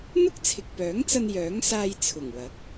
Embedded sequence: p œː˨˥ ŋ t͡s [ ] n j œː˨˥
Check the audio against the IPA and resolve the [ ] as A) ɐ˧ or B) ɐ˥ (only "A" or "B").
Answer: A